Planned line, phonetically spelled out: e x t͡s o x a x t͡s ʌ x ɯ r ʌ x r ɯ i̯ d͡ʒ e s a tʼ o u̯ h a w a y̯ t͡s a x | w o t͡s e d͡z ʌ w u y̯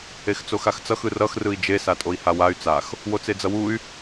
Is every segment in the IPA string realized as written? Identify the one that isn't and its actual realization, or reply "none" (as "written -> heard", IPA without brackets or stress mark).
u̯ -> i̯